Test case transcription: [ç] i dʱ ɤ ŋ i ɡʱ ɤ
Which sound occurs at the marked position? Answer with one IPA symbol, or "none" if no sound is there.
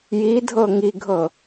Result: j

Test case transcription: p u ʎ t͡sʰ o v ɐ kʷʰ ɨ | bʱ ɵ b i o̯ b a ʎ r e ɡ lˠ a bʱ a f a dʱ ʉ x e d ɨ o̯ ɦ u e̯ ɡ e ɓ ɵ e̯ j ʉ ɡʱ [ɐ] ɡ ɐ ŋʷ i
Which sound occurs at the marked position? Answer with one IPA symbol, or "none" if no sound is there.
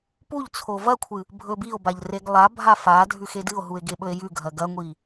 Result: ɐ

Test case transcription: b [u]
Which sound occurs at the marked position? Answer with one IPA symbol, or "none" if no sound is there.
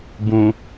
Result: ũ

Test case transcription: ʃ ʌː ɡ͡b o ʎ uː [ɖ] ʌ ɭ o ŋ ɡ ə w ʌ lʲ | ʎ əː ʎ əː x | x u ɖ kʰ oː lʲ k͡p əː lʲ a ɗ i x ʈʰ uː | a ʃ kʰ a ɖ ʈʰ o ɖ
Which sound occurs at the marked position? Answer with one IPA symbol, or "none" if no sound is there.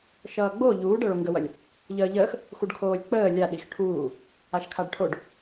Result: ɖ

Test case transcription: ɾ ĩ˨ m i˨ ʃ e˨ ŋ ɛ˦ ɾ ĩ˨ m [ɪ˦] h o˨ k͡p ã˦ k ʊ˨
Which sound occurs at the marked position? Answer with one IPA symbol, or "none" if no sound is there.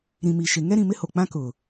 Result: ɪ˦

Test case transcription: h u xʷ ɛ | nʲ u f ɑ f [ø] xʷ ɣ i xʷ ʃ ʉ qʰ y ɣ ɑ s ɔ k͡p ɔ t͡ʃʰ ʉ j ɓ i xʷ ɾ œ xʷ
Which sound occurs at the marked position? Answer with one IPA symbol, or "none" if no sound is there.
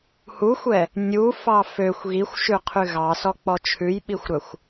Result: ø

